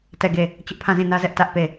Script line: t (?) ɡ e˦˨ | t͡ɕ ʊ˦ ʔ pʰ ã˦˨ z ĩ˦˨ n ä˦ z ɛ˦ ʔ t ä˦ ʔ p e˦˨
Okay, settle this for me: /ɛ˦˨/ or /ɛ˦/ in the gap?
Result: ɛ˦˨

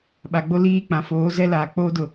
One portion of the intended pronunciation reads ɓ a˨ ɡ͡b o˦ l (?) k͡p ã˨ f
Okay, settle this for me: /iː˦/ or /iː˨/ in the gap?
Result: iː˦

